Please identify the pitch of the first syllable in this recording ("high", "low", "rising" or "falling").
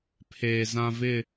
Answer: low